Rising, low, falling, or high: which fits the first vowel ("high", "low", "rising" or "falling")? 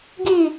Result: falling